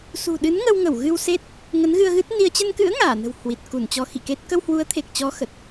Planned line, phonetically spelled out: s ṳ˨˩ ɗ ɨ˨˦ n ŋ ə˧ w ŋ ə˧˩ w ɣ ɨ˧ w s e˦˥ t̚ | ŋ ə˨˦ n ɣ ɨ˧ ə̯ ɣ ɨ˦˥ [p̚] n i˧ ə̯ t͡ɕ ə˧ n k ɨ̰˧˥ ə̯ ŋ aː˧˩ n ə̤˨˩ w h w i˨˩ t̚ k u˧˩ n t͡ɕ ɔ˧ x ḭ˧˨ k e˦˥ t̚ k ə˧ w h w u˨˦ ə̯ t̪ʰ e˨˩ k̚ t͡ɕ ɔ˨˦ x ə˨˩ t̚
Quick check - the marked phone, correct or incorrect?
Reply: incorrect